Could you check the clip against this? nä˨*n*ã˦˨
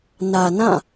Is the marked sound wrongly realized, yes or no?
no